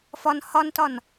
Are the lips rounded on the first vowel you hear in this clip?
yes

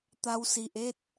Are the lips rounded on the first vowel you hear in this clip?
no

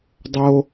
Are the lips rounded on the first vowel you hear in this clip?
yes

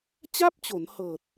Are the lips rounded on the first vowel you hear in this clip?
no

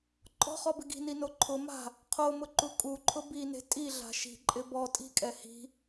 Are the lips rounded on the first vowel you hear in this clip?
yes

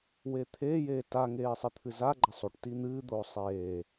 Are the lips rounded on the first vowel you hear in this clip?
no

